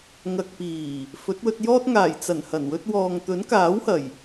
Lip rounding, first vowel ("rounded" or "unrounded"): unrounded